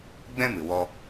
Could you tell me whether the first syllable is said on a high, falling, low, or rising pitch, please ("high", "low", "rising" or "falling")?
high